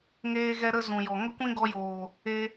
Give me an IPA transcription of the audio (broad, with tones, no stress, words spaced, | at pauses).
ŋeː˦ɣɛ˦ɾə˦ zũ˨jɔ˨ ŋə˦kʷĩ˦ɡɔ˧joː˨ | e˧